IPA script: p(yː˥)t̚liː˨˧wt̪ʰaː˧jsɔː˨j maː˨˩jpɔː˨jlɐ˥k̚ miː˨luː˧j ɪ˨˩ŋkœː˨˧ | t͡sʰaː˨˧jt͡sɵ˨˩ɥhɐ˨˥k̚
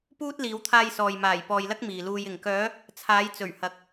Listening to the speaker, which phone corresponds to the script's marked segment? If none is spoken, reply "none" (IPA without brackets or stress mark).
uː˥